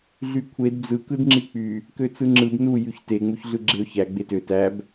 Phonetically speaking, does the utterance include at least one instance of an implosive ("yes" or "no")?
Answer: no